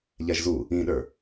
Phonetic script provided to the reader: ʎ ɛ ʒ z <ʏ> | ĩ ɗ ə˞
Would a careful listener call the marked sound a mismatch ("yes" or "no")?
yes